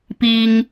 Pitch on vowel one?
low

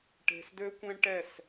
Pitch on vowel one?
low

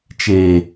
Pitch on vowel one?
low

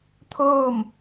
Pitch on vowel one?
falling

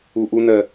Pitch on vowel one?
low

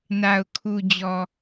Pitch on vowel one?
low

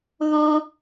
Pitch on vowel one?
high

